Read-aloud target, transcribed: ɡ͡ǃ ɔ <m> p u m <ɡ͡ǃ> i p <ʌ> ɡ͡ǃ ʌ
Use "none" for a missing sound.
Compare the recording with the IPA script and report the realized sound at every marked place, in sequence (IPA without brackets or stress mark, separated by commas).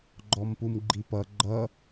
m, ɡ͡ǃ, ʌ